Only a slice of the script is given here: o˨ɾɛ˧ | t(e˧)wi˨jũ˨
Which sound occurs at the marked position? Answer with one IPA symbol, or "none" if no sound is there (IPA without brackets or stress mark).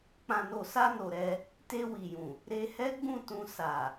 e˧